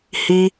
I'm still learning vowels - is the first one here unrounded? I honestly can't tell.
yes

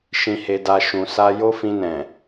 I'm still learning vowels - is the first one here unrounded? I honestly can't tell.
yes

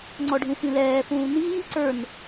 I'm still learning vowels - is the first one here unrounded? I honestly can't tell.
no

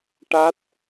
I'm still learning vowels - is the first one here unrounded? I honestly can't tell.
yes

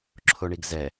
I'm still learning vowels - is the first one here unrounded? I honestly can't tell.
no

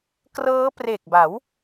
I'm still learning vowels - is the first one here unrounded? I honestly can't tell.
yes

